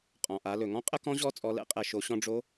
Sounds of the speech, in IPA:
qʼɔ̃˩ʔa˩˧lɵ˩ ŋɔ̃˥qʼə˥kɔ̃˧˥ʑɔ˧˥ t͡sʼɔ˩˧lɛ̰˧˥qʼɛ˩ ʃo˩˧ ɕɔ̃˧ɖ͡ʐo˧˥

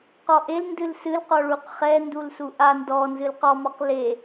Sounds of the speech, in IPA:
qɔʔel ndɨlsɨlqɔ ɭuqχɛndul suʔa ndɔ nzɨlqɔmɔq le

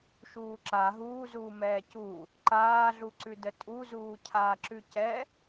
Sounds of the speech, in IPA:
ʃuːǁa ɦuːzuː mɛːcu | ǃaːɮuǀʉdə tʼuzuːcʰaːǁʉ cɛ

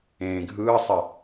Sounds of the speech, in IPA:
ẽːɡʱɯːsˤə

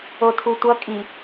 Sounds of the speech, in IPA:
otʰutʷʌ kʼi

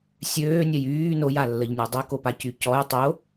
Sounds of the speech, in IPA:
sʲøːnʲœj yː nojalːəʎnʲœ dˤokopacy cɔj tˤo

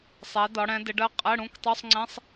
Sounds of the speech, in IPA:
sˤɛ˩˧dɒ˩˧ɽɛ̃˩˧ dɪ˩˧ɖɜ˩˧˩ qʼɛ˧˥˧ɽũ˧˥˧ktˤu˧˥˧sˤŋ͡ǀɛ̃˧˥˧sˤ

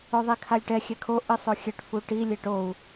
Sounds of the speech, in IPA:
oðˤekʰalʲʈɛ xʲɛkʰo ʔɯsˤoxʲɛʈ fuʈi lʲeʈou̯

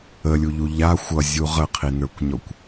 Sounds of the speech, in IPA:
əlʲuʎu ʎa xʷʌzʲu ʁəqʰinə˞kʷɲɔkʷ

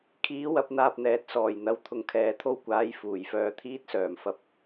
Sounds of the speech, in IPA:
kʰiː˨˥ wɐ˨˥p̚n̪aː˧p̚n̪ɛː˨˥t̚ sɔː˨˩jn̪ɐ˧w t̪ʰʊ˨ŋkʰɛː˨˧t̪ʰo˥wkʷaː˨˥j fuː˨˩jfœː˧t̪ʰiː˥t̚sœː˨˩m fɐ˧p̚

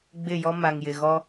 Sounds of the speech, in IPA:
ɡ͡bɪ˦˨jɔ˦ ma˨ŋjɪ˨ ɣɔ˦

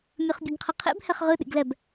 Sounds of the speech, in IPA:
mʲɯχbʲɯɡqʰəqʰḛb hɛχʁɯ ɗḭɡlɛb

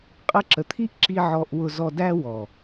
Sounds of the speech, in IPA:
qʼə˧ ǁə˨t̪ʰi˦ʔǁi˧ ʕɔ˧ʔwʊ˧ zɔ˧dæ˦wɔ˨

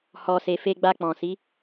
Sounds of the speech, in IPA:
hɔ˨se˨ fe˧ɡ͡ba˧ k͡pɔ̃˨si˨˦

